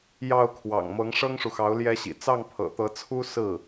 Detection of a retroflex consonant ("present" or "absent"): present